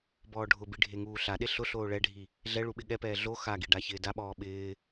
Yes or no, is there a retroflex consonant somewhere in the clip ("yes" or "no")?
yes